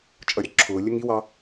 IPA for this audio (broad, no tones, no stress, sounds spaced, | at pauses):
t͡ʃʼ ʌ ɾʲ ɒ ǁʰ ʊː lʲ ə ŋ i w ɑ